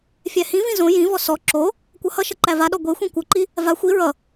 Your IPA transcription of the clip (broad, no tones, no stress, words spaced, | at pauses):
fʲæhĩvĩ zõ jĩvɔ sɔ ǁo | kʷʌhʌʃʌ ǃævaɗɔ ɡʷexʷĩ kʷʌǃi | va xʷi ɹʌ